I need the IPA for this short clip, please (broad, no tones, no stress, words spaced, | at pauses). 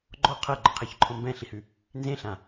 ɡ͡ǃɔ qʰɤɡ͡ǃʌqʰeçǃʰɔ̃ mbɛ̃ɬihʉ | nzẽɬã